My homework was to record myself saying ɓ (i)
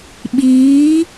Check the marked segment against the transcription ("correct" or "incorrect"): incorrect